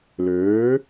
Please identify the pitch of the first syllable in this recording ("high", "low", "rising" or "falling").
rising